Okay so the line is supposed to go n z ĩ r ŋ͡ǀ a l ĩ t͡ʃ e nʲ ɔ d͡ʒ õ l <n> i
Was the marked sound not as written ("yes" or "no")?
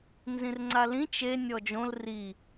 yes